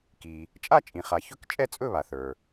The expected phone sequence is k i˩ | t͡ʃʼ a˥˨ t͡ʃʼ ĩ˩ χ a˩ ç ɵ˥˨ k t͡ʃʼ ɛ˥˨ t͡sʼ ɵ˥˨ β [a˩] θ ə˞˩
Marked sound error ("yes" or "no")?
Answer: no